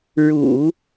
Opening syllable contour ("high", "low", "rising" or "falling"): low